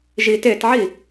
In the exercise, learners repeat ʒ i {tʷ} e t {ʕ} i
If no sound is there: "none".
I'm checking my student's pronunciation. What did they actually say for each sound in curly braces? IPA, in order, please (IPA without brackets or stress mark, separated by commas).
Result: t, ʕ